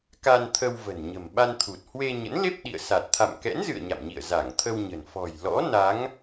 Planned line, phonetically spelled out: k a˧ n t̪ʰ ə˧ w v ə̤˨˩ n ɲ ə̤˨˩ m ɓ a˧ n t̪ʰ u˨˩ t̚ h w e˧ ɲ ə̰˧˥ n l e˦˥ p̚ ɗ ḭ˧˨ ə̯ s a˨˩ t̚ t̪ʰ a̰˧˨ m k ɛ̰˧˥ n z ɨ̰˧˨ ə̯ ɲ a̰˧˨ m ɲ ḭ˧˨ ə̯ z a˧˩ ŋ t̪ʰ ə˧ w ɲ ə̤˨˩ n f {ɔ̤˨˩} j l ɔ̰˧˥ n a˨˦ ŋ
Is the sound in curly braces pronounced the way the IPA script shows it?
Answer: yes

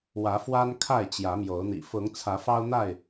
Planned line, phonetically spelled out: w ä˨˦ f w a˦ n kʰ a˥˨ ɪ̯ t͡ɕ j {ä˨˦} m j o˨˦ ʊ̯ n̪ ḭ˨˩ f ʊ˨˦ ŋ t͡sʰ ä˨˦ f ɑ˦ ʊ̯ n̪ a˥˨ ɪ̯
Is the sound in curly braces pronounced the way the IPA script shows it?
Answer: yes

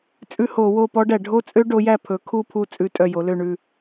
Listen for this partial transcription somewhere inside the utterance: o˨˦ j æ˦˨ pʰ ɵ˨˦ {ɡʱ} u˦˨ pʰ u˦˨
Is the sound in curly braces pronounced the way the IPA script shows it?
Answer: no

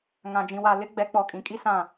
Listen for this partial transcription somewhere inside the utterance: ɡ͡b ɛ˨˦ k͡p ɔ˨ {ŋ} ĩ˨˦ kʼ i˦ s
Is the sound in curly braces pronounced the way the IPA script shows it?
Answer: no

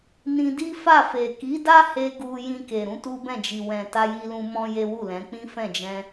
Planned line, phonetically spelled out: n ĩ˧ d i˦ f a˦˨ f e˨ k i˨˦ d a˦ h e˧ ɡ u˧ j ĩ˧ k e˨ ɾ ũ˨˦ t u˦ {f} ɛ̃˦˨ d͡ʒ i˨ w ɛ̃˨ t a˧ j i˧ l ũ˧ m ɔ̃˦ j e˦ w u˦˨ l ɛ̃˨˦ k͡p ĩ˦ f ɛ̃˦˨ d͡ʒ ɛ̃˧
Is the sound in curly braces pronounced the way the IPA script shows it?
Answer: no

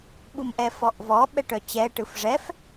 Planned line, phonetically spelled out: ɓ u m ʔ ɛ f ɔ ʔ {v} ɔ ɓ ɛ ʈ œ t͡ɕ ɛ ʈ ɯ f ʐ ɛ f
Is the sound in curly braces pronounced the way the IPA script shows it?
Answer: yes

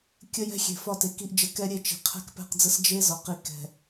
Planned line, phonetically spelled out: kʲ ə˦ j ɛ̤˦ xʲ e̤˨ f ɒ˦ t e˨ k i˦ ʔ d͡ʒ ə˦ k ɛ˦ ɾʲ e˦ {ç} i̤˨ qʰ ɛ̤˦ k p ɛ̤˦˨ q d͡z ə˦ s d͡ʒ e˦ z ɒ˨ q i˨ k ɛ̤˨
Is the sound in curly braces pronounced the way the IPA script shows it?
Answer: no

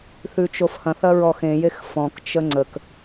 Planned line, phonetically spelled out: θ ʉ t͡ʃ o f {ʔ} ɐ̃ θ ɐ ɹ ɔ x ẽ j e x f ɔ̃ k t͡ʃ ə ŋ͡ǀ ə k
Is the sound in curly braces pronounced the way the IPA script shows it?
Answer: no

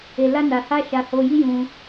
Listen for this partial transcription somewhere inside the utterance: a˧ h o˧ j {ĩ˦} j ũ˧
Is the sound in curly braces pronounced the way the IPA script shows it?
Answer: no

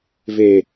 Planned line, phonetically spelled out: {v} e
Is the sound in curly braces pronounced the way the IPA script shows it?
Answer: yes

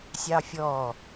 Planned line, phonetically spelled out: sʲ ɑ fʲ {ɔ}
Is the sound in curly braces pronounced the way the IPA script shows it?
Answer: yes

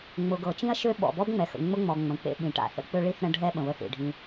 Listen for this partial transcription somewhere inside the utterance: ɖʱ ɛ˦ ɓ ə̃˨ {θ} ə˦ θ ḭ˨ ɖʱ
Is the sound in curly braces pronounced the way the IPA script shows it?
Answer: no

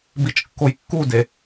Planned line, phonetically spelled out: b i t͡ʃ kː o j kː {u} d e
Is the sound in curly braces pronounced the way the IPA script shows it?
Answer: yes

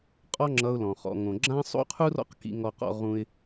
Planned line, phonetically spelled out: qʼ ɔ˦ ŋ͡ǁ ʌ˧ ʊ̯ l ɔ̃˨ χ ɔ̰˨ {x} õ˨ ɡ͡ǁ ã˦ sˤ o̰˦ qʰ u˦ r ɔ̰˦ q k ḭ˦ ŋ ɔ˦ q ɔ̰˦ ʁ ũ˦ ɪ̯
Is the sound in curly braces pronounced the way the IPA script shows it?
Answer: no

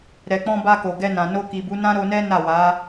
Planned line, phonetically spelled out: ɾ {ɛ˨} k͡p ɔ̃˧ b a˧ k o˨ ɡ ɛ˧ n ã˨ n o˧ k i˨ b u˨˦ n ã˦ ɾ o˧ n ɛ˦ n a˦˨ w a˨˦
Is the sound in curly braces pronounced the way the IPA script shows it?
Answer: yes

